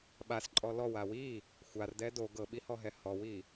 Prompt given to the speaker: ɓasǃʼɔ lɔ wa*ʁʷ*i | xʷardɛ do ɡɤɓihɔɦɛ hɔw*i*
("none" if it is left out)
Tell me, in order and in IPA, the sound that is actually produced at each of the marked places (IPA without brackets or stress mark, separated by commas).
w, i